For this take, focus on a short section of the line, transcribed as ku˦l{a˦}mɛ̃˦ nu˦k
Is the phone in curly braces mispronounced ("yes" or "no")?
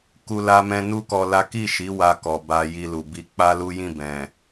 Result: no